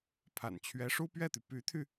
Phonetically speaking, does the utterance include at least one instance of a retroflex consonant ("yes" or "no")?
yes